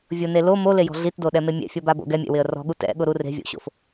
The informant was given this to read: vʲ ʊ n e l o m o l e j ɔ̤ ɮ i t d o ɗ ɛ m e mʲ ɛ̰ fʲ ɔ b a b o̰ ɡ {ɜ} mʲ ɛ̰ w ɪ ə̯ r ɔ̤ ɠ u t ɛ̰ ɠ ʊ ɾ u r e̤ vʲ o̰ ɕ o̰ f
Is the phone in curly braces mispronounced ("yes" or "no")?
yes